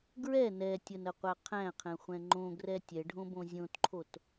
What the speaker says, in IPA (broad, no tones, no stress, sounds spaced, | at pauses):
ɡ ɹ ɛ n ɛ tʲ ə n ə qʷ æ qʰ æ̃ qʰ ɛ̃ χʷ ɛ̃ ŋ͡ǃ õ ɡ r ɛ tʲ ɛ ɖʱ õ b õ zʲ õ t ǃʰ o t